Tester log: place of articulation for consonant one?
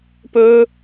labial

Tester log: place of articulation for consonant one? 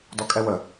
alveolar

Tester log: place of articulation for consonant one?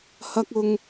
glottal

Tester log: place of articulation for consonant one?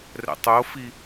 alveolar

